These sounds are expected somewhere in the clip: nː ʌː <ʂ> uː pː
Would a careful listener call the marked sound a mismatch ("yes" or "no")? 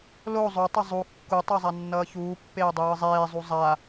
yes